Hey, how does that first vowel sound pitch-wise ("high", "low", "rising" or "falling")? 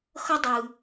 high